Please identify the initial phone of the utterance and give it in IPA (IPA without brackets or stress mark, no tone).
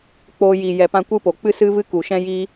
k͡p